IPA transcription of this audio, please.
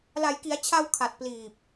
la˩˦jki˩˦a̯t͡ɕʰa˧w kʰa˨˩t̚pliː˨˩p̚

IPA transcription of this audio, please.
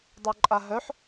dˤœǃʼaɦœħ

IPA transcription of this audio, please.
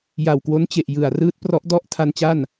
ja˨˩wkwo˦˥nt͡ɕe˨˩ʔ jɯ˨˩a̯ rɯː˦˥t̚prɔ˦˥ʔ dɔ˥˩ʔ tʰa˧nt͡ɕa˥˩n

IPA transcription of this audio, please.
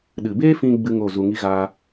ɗɨ˨beː˦fĩ˧ ɡ͡bɨ˦ŋo˦˨zu˧ŋi˦ ɣa˦

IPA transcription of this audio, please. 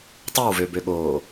tˤøwvøbøɠoː

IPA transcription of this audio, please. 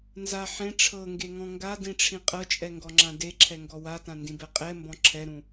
nza ħẽ ʈ͡ʂʰɤŋɡeŋɔ̃ ŋɡadĩʈ͡ʂʰĩ qʼɤt͡ʃʼɛŋɡɔŋ͡ǁã deǁʰɛŋɡɔ watãndĩbɛ qʼɛmbɔ̃ ǁʰɛɾũ

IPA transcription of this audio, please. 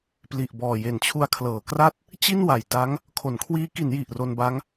pli˨˩ʔ bɔː˨˩ je˨˩nt͡ɕʰu˧a̯kʰlɤː˩˦kra˥˩t̚ | t͡ɕi˥˩nwa˨˩jta˦˥ŋ | kʰo˩˦nkʰwiː˦˥ ki˩˦n ji˨˩ʔro˧nba˦˥ŋ

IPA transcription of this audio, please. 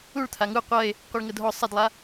uɭt̪ʰa ŋu qʷɐe̯ | qʷɛɭŋədɦɔ sˤɐdlˠa

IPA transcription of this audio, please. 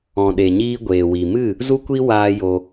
ɔ̃˨ɗe˨ɲiː˧ ɡʷeː˨wi˨mɨ˦˨ | zu˦kʷi˦ waː˦jo˧

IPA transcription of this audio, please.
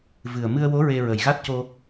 vɨ˨˩ə̯ mɨ˧ə̯ wo˧˥ ɹe˧ɹə˨˩j ɣa˦˥t̚co˧

